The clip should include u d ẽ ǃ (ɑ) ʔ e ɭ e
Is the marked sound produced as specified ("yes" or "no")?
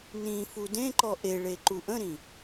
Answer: no